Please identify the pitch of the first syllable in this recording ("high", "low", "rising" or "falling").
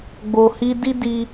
low